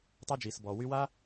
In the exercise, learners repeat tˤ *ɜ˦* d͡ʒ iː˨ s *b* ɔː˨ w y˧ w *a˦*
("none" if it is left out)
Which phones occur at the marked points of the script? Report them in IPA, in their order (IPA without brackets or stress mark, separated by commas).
ɛ˦, b, a˦